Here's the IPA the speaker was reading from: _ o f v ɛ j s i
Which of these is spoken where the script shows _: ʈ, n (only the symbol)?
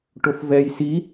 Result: ʈ